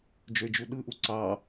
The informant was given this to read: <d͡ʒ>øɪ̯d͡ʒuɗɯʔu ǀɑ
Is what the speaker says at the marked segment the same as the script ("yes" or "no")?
yes